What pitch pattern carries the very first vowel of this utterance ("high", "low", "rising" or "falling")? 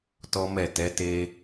high